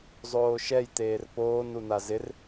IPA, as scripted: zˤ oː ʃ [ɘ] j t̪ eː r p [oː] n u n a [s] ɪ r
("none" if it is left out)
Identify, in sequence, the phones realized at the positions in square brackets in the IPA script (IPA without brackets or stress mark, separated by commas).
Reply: ɛ, oː, z